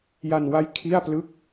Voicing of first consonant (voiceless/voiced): voiced